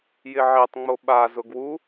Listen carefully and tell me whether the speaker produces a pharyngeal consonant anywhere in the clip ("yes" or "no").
yes